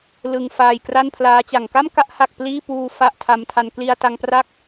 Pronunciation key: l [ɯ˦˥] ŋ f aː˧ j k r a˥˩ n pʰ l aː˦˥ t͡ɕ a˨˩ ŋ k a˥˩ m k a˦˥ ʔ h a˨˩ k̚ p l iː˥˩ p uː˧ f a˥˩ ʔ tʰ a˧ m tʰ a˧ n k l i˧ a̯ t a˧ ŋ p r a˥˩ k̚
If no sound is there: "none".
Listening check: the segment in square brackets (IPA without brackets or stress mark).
ɯ˧